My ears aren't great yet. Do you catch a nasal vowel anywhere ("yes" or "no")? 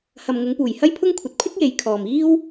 no